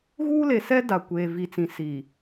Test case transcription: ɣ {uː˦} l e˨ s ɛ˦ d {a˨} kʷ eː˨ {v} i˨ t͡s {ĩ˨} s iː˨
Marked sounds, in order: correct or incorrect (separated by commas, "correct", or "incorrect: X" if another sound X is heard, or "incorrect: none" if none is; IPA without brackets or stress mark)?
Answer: correct, correct, correct, correct